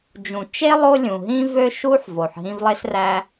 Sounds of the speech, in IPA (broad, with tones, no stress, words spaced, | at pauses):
d͡ʒũ˩t͡ʃe˥lˠo˦ lʲũ˩ɦĩ˥vø˥ʃu˥ħ vo˩ħɦĩ˦vlˠe˥sræ˦